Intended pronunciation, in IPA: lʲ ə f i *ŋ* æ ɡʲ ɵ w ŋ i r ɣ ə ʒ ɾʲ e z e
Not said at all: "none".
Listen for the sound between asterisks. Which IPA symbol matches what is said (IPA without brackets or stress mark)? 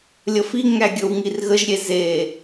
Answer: ŋ